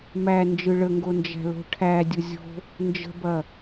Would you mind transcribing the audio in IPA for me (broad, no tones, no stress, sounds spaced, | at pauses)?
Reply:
m æ n d͡ʒ ɯ ɭ ə ŋ ɡ o n d͡ʒ æ̤ l o̤ ʈʰ æ dʲ ʊ zʲ o̤ | n d͡ʒ ə̤ b ɐ